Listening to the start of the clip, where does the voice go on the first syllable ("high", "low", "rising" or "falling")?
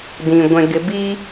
low